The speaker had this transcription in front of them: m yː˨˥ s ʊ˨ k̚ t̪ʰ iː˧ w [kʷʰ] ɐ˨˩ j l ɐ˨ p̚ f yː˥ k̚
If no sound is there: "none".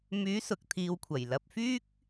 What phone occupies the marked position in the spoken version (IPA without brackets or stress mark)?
kʷʰ